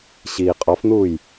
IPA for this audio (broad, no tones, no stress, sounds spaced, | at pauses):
ɕ iː qʼ ɔ f n̪ uː j